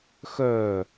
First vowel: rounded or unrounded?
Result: rounded